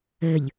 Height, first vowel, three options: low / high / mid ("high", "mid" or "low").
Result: mid